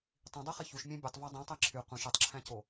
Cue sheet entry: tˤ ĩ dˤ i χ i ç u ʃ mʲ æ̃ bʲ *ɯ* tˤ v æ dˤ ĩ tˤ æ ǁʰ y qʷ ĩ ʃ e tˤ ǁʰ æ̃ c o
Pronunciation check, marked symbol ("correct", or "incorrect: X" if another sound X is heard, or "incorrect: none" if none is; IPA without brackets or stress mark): incorrect: u